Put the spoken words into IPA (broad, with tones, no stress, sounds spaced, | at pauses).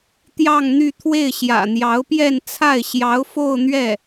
t̪ j ɑ˥˧ ŋ n̪ y˥˧ t̪ʰ w e˥˩ ɪ̯ ɕ j ä̰˨˩ n̪ j ɑ˧˥ ʊ̯ p j ɛ˥˧ n t͡sʰ a˥˩ ɪ̯ ɕ j ɑ˧˥ ʊ̯ f o˥˧ ʊ̯ n̪ ɥ ɛ˥˩